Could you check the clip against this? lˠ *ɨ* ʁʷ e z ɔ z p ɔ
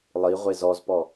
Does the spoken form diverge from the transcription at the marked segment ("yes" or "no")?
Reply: yes